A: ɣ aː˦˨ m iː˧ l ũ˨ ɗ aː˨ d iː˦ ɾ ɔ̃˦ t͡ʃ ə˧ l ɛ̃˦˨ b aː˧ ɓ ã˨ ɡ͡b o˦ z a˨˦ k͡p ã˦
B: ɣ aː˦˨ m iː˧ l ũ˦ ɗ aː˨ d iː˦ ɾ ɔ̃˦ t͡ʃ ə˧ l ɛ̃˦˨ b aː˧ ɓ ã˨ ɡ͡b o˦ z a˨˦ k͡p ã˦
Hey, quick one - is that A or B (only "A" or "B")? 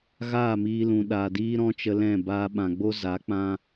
A